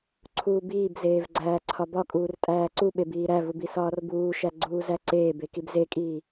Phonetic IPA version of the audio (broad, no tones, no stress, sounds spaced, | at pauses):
ǀʰ uː b iː b z eː v ɡ͡ǀ æː ǀʰ ɒ b ɒ kʼ uː r tʼ æː ǀ u ɓ e b iː ɾ æ v u b i s ɒː r b uː ʃ æ ɡ͡ǀ uː z æ ǀ eː b e k i b z e kʼ iː